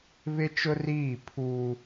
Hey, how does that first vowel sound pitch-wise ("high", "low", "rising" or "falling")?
high